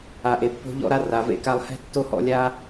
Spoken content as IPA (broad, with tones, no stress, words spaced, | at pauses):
a˨ʔe˨ pːo̤˧ʎɔ̰˧ɾa˧ ra˨vḛ˧ka˧lˠ hɛ̤˧ tːo˦hɔ̰˧lʲa˦